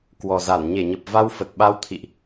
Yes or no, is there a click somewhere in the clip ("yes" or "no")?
no